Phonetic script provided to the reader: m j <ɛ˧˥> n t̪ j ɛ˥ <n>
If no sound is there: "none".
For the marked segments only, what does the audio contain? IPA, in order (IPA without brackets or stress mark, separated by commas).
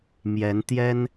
ɛ˧˥, n